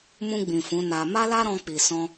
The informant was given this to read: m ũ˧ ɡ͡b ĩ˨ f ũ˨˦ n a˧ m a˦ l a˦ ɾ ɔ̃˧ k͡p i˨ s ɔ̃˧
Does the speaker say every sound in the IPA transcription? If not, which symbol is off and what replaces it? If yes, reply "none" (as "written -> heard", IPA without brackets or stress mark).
none